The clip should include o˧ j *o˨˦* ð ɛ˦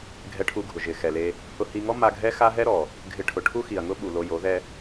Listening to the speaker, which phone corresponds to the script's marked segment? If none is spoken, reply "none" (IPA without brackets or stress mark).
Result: o˨˦